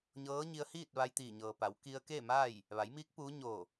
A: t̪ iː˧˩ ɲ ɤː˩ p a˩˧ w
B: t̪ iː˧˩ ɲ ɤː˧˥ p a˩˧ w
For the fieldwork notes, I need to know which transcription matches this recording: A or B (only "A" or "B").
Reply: A